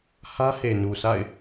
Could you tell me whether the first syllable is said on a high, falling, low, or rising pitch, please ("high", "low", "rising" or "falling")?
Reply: high